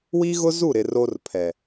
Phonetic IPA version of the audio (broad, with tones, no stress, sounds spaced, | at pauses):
w i˦ ɣ ʊ˦ z u˦˨ ɾ ɪ˨ r o˦ r pʰ ɛ˨